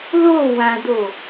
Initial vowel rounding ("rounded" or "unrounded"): rounded